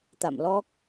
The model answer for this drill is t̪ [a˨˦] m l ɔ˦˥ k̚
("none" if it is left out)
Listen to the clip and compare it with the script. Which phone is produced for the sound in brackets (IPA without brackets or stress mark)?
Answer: a̰˧˨